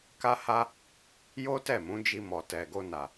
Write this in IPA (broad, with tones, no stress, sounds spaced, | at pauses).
k a˧ h a˧ | j o˦ t ɛ˦˨ m ũ˨˦ d͡ʒ i˧ m ɔ˨ t ɛ˨ ɡ o˧ n a˨